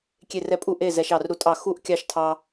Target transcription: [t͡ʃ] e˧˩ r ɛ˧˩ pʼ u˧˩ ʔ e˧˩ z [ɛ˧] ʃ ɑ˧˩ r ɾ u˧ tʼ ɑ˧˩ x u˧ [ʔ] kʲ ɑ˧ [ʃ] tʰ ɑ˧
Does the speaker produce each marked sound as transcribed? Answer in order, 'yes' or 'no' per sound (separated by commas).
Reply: no, yes, yes, yes